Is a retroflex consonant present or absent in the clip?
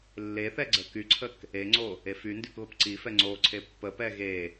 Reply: absent